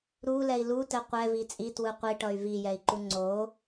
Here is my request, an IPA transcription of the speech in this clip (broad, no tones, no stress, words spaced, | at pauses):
ɾulɛi̯ lutɛ qʷɛvi t͡sʼitwɯ qʷiʈʌy̯ vijɛi̯ǃu ŋ͡ǀo